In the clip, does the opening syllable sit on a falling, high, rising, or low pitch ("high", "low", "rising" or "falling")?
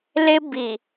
high